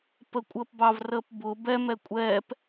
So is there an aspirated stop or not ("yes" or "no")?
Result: no